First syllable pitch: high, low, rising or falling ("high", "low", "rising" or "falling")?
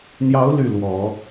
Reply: rising